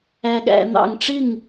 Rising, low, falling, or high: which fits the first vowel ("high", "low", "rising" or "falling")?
low